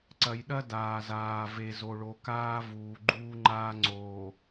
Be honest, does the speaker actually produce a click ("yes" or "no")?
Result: yes